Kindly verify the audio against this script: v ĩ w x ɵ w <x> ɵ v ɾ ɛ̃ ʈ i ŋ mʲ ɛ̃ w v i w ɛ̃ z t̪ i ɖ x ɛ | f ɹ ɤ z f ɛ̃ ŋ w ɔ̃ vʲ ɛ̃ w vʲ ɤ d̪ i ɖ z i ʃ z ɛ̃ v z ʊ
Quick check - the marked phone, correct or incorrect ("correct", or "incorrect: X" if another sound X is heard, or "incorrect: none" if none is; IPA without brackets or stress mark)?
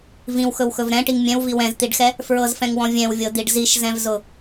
correct